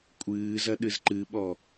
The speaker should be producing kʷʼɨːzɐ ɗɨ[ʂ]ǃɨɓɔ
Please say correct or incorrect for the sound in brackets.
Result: incorrect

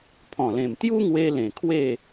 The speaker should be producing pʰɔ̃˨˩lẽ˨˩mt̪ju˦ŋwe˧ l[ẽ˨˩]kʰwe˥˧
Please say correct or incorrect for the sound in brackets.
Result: correct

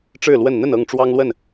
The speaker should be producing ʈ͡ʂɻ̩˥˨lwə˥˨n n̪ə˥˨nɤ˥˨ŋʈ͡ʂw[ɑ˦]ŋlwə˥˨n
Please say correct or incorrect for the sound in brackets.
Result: correct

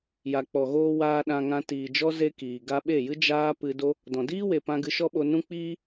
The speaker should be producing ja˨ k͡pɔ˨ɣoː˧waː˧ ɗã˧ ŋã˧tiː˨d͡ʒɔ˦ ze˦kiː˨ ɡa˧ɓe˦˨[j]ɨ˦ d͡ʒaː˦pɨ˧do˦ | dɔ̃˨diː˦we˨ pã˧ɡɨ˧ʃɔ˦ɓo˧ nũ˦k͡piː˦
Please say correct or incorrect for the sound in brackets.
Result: correct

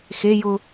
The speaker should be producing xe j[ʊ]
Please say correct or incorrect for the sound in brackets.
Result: correct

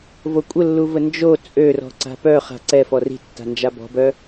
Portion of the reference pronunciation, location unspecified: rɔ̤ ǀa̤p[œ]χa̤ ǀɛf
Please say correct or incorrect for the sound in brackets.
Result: correct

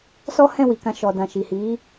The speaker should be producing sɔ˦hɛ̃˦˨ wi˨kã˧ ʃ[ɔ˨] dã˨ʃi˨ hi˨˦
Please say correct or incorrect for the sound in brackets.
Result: correct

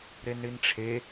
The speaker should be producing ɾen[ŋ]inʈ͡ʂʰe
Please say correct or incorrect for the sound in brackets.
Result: incorrect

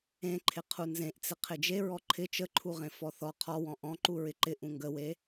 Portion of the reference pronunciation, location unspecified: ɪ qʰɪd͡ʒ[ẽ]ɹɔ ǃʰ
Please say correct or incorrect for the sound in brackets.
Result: incorrect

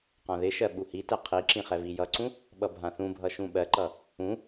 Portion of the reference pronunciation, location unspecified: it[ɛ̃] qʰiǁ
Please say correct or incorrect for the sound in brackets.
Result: incorrect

